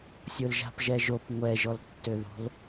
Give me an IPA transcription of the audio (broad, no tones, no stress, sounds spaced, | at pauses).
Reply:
sʲ o l ʒ a̤ p ʒ ɛ ʒ o p ŋʷ ɛ ʒ ɔ l tː ø ð o̤ l